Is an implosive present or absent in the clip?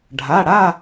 absent